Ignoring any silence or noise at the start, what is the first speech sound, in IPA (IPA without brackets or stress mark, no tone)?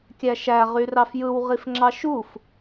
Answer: kʲ